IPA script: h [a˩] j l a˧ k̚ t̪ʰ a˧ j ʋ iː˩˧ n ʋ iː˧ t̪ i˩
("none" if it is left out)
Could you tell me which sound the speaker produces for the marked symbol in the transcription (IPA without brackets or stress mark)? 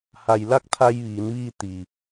a˩